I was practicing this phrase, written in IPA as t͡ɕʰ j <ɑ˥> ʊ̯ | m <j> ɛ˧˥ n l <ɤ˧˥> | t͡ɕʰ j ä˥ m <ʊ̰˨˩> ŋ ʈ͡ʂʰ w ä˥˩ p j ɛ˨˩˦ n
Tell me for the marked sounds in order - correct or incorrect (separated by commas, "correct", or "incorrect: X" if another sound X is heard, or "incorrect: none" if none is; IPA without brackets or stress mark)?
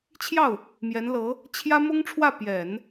incorrect: ɑ˥˩, correct, correct, incorrect: ʊ˥